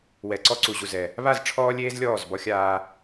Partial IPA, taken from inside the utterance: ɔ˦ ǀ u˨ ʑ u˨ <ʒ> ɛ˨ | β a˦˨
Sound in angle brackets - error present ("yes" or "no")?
yes